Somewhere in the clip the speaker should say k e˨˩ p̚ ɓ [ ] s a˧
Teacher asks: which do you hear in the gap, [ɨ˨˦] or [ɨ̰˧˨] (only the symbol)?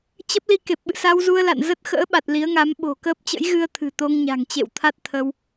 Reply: ɨ̰˧˨